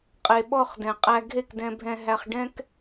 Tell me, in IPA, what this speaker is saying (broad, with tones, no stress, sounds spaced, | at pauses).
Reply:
qʼ e˩ ɓ ɔ˥˩ χ d ɛ̃˩ qʼ æ˧ ɡʱ e˥˩ k d ɛ̃˧ bʱ ɛ̃˧ ɦ æ˧ χ ɖ ɛ̃˥ k